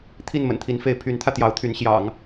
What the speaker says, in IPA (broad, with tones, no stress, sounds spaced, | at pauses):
t̪ʰ i˥˩ n m ə̰˨˩ n t̪ʰ i˧˥ n f e˧˥ ɪ̯ pʰ y˧˥ n t̪ʰ ä˧ t̪ j ɑ˧˥ ʊ̯ t̪ʰ y˧˥ n ɕ j ɑ̰˨˩˦ ŋ